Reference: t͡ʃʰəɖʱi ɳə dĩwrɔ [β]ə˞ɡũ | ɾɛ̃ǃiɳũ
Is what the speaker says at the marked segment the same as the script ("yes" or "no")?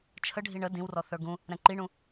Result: no